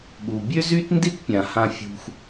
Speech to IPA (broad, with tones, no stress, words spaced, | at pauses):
ɠu˨bʲø˦zy˦tndi˦t pʲã˨hã˧fʲṳ˧x